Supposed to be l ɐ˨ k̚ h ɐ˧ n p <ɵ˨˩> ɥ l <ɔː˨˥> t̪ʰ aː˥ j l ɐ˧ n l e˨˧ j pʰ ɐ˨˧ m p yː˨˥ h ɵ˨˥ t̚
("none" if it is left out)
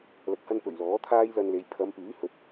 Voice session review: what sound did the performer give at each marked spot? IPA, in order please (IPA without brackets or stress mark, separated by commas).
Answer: ɵ˨˩, ɔː˨˥